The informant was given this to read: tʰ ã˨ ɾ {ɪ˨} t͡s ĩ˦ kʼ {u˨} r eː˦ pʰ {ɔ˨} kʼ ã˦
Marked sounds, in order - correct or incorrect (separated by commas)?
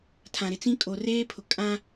correct, incorrect, incorrect